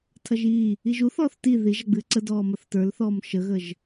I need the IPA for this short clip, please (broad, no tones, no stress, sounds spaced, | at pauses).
tʰ ɐ ʒ iː | i ʒ u θ ɔː θ t i ð i ʒ ɐ ɡ͡b ɨː ǀ ə d ɔː m ɐ θ t ə˞ l θ ɔː m ʃ ə ɣ ə ʒ